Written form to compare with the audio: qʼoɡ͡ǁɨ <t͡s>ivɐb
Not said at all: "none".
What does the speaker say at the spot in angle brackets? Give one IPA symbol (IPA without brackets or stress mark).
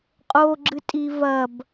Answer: tʼ